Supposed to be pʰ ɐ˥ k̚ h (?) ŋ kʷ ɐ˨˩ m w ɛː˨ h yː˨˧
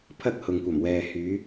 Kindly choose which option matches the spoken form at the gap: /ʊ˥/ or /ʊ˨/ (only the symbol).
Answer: ʊ˨